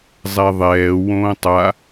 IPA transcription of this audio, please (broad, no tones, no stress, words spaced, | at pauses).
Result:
zˤɛðˤɛː wõːtˤa